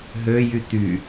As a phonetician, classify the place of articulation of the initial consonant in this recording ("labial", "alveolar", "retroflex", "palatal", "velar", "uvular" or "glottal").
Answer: glottal